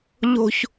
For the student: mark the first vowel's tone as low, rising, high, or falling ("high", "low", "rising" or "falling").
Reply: high